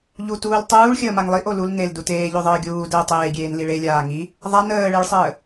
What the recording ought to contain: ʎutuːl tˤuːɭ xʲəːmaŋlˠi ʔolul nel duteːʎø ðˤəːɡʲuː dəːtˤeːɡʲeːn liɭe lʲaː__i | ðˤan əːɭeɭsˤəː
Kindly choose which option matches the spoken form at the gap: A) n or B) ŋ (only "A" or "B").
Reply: B